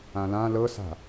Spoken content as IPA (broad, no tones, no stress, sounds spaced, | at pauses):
ã l ã l ɤ s a̤